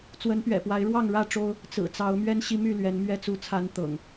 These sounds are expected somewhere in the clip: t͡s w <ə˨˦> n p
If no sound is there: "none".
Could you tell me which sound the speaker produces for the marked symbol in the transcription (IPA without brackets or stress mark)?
ə˨˦